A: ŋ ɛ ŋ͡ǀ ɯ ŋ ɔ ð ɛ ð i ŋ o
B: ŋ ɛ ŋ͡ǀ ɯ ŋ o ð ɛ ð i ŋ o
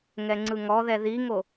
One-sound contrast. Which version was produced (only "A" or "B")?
A